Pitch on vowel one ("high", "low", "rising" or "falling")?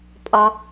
low